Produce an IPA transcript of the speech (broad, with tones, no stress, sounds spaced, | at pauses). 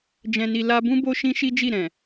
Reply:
d͡ʒ ɛ̃˧ n i˧ l a˧ b ũ˦ b o˦ ʃ ĩ˦ ʃ i˦ d͡ʒ i˦˨ ɾ ɛ̃˨